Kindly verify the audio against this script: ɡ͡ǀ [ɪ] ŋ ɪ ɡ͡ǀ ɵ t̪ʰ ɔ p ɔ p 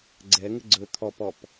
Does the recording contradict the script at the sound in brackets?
yes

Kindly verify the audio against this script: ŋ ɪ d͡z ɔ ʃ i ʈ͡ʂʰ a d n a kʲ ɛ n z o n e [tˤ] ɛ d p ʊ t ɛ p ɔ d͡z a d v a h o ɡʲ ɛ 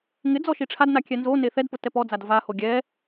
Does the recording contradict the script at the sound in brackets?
yes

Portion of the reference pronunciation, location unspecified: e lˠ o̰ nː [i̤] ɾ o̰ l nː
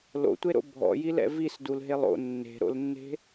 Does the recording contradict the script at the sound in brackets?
yes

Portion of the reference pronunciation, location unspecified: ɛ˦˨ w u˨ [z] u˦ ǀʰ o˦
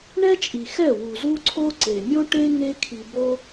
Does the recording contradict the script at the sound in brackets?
no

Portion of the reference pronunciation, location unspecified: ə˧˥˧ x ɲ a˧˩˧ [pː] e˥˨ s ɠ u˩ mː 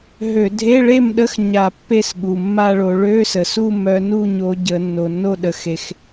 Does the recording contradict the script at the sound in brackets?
no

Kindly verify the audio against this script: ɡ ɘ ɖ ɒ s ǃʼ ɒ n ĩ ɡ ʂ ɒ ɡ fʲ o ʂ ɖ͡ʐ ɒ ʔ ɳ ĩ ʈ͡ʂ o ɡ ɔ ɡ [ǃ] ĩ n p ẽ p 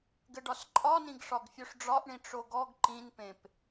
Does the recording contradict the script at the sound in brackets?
no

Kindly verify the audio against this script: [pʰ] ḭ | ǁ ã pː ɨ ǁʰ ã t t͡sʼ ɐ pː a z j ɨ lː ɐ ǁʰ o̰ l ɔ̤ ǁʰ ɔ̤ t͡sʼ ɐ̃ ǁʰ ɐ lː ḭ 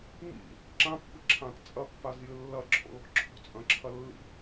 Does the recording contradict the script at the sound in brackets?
yes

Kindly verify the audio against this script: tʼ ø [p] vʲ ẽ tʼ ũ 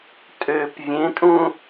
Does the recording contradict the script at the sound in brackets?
no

